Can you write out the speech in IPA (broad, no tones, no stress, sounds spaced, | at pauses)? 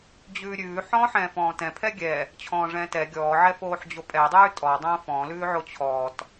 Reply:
d͡ʑ ʉː ɾʲ ʉː ħ ɔ̃ː ħ ɛ̃ː f ɔ̃ː t ɛ̃ pʰ ɛ ɡʲ ɛ | t͡ɕʰ ɔ̃ː ʐ ɛ̃ː t ɛ ɡʲ ɔː ʕ ɛ f oː ħ d͡ʑ o pʼ ɛ dˤ ʉː tʼ ɔ dˤ õː f ɔ̃ l ʉː ʕ o t͡ɕʰ ɔː t